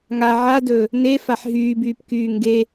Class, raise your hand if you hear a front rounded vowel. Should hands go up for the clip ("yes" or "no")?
yes